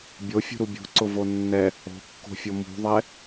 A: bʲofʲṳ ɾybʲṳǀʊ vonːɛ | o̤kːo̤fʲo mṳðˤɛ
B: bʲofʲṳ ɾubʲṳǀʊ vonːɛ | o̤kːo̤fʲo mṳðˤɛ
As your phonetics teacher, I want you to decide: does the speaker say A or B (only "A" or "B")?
B